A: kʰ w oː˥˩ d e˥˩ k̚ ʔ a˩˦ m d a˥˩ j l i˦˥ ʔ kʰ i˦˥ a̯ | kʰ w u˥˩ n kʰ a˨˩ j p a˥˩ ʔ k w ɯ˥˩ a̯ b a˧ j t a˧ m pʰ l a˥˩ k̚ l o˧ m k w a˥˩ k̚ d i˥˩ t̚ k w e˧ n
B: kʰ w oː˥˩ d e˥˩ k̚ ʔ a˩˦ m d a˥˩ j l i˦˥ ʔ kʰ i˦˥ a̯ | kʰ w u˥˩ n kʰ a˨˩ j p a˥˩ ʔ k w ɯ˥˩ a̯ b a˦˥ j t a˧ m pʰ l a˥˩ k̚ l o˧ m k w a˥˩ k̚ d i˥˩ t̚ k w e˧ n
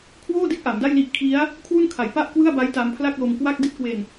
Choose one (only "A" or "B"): B